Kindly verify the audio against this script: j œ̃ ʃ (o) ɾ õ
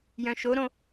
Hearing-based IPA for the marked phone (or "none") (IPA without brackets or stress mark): o